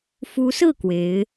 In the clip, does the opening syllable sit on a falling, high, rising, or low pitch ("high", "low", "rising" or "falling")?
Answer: rising